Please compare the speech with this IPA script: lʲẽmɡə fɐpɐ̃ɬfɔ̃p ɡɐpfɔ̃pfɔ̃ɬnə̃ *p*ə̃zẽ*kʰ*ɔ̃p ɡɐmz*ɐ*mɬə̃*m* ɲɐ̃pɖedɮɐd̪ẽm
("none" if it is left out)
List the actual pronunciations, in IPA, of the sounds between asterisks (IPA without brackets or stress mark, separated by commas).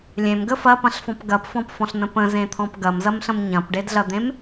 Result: p, t̪ʰ, ɐ, m